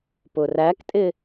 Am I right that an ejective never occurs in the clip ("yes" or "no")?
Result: no